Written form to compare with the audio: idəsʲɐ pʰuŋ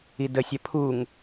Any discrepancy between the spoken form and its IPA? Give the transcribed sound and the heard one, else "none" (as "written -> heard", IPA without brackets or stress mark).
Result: none